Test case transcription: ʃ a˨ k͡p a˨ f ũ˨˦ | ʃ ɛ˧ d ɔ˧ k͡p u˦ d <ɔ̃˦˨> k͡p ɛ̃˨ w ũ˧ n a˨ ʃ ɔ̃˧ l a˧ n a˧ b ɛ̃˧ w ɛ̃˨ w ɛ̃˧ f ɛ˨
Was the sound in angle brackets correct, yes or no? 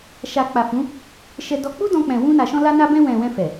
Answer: no